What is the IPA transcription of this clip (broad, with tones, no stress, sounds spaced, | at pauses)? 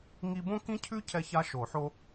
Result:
ŋ i˥ b õ˥ k ĩ˥ cʰ ʉ˥ cʰ ɛ˥ ç a˥ ʃ o˨˩˦ ħ o˥